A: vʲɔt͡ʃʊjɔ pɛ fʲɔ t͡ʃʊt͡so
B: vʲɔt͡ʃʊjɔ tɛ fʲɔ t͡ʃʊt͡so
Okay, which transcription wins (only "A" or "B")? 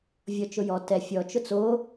B